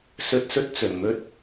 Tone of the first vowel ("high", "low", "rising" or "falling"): low